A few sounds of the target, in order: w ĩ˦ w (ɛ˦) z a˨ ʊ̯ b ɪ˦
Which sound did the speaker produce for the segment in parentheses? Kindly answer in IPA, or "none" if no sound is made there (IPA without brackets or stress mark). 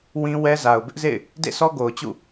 ɛ˦